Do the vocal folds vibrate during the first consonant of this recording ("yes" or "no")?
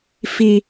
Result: no